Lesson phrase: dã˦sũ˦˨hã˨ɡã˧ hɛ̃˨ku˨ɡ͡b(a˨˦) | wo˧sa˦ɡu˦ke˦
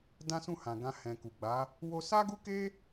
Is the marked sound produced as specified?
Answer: yes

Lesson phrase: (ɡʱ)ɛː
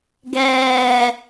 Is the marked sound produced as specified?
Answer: no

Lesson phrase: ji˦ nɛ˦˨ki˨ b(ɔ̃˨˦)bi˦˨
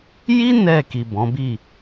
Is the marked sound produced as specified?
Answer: yes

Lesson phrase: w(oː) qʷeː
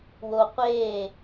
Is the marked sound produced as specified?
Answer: no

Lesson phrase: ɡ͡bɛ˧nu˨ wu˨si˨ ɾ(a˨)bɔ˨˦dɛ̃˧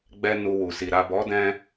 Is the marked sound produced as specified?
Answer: yes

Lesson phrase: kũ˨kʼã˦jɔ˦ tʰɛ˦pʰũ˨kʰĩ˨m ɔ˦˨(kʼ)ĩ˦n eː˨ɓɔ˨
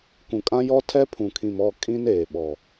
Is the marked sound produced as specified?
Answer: yes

